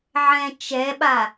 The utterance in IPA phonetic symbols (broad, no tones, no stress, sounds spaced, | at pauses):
ʕ ɛ̃ t͡ʃ ɛ ɓ a